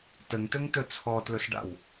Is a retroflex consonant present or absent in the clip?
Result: present